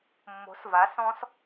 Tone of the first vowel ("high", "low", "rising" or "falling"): rising